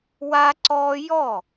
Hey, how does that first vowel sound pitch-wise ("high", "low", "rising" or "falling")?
high